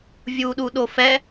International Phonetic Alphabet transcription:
vʲ u ɗ u ɗ o f ɛ

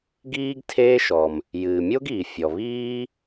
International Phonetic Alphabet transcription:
ɡ iː˥ ɡ tʰ eː˥ ʃ ɔ˩ m | j ɨː˩ mʲ o˥ ɡ iː˩ fʲ ɔ˩ β iː˥

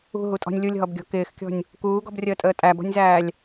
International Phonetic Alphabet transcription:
ṳ ɦ u tʼ ɔ̤ nʲ lʲ u lʲ ɦ ɔ b ɡʲ ɔ̤ k ɪː x kʲ ɔ̤ nʲ | k uː ɡ ɔ̤ b rʲ əː tʼ əː tʼ æ b ɔ̤ nʲ z æː lʲ

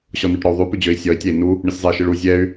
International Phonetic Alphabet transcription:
ɕ ɔ n u ʈ ɾ ɔ u̯ ðˤ ʉ p ʉ d͡ʑ ø i̯ sʲ ɔ i̯ tʲ ɛ i̯ n u | ɳ ɨ sʲ zˤ ɛ i̯ ʃ ɨ ɭ u zʲ ɛ y̯

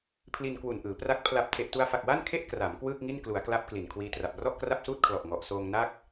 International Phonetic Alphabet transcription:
pʰ l i˧ n k w u˨˩ n ʔ ɯː˩˦ p r a˦˥ k̚ pʰ l a˨˩ p̚ tʰ e˨˩ ʔ t u˧ a̯ f a˨˩ k̚ w a˥˩ n kʰ e˥˩ ʔ k r a˩˦ m k w ɯː˥˩ k̚ ŋ i˥˩ n k l u˩˦ a̯ k l a˦˥ p̚ k l i˨˩ n kʰ w iː˦˥ t r a˨˩ p̚ r ɔ˥˩ ʔ k r a˥˩ p̚ s uː˥˩ t̚ kʰ l ɔ˨˩ ʔ ŋ ɔ˨˩ ʔ s oː˧ ŋ n a˥˩ k̚

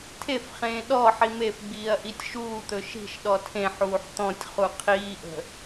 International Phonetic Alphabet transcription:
tʰ e f χ ẽː ɗ ɔ ħ i m e f ɡ͡b iː ɐ̯ ʔ i tʲ ʃ uː t̪ ɵ ʃ i̤ ʃ ɗ ɔ tʰ ẽ ħ uː ħ t̪ ɔ̃ tʲ χ u qʰ iː ʔ ə̤

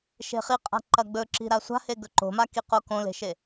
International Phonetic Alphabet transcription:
ʃ e̤ χ i qʼ a̤ ǃ ɐ ɡ͡b ɵ ǁ i̤ ɾ a sʷ a̤ h e ɡ ɵ ǃ o̤ m a k i q o k õ l e̤ ʃ e

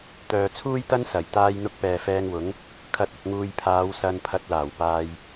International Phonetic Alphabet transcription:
t̪ œː˨ t͡sʰ uː˥ j t̪ ɐ˥ n s ɐ˨˩ j t̪ aː˥ j n̪ ʊ˧ k̚ p ɛː˨ f ɛː˧ ŋ w ʊ˨˥ ŋ | kʰ ɐ˨˥ t̚ ʊ˨ k̚ ŋ uː˨ j pʰ aː˨˧ w s ɐ˧ n pʰ ɐ˧ t̚ l aː˨˩ w p aː˧ j

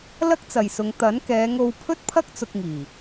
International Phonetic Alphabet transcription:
l ɐ˥ k̚ t͡s ɐ˨ j s ʊ˨˧ ŋ t̪ ɐ˨˥ n k ɛː˨˧ ŋ o˧ w pʰ ɵ˥ t̚ pʰ ɐ˥ k̚ t͡s ʊ˧ k̚ ŋ iː˨˩

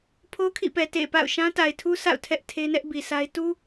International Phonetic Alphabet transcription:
pʰ o˦ kʰ ḭ˦˨ p ɛ˨ t ḛ˦˨ p a̰˦˨ ʊ̯ ʃ ã˦ t a˨ ɪ̯ tʰ u˦ sʰ a̰˦˨ ʊ̯ tʰ ɛ˦ ʔ tʰ e˦ n ɛ˦ ʔ b i˨ sʰ a˦ ɪ̯ t u˦

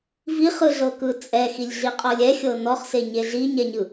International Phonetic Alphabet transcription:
v i χ ɯ ɮ ɤ k ɯ t͡sʼ ɛ x i lʲ ɮ i qʼ ɔ lʲ ɛ xʲ ɤ n ɔ χ s e ɲ e ɮ i ɲ ɛ ɲ ɯ

